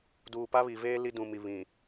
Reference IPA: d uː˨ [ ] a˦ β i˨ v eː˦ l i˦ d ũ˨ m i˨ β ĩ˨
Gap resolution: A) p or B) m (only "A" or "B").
A